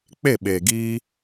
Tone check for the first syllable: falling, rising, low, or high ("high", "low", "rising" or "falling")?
falling